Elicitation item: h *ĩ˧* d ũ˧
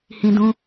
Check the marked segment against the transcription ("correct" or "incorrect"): correct